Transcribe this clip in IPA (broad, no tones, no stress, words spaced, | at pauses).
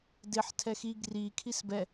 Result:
dɪħ tʰɛxi ɡri kʰisbɛ